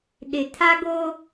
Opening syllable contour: low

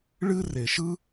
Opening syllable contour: high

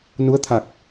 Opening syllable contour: rising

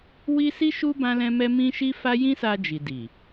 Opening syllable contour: high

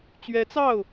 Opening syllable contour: rising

